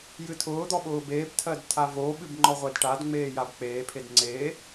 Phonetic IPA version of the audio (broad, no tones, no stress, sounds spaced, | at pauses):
j ɨ tʰ ʊː d̪ ɔ ɓ ʊː b eː b tʰ ɜ d tʰ a v o ɓ ɨ b ŋ͡ǃ ɔ ʁʷ ɛ d ʈ a d ŋ͡m eː j a b k͡p eː pʰ e d ŋ͡ǀ e